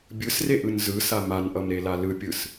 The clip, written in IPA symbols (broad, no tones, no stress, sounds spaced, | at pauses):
bʲ ɯ s r e ʔ ɯ n z ɯ s a m a n ʔ ʌ m ɾ e l a l ɯ pʲ ɯ s